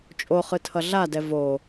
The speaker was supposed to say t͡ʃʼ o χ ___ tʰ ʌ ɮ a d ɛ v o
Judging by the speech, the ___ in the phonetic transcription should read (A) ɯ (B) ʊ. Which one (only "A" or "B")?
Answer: A